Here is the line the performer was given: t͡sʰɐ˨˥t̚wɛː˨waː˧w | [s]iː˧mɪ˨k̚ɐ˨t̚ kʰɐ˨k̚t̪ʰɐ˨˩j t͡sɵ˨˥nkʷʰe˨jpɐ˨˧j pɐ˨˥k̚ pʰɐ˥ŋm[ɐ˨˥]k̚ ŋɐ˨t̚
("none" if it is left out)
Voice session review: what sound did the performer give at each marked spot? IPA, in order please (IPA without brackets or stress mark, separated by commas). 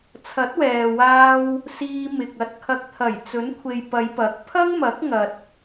s, ɐ˨˥